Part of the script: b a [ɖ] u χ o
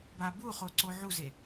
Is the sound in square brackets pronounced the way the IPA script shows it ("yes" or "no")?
no